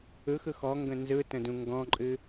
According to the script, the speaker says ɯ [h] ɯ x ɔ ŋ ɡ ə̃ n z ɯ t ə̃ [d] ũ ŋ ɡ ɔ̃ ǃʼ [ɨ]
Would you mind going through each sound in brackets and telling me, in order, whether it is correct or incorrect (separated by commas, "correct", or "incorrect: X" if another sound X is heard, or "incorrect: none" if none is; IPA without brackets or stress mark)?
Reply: incorrect: x, correct, correct